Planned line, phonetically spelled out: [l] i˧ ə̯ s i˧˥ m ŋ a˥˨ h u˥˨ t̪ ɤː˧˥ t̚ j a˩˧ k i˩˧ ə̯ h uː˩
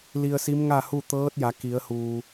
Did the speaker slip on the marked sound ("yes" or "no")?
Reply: no